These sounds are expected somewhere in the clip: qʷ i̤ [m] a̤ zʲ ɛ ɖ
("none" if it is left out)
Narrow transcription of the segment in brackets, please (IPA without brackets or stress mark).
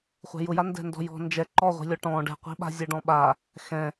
ɓ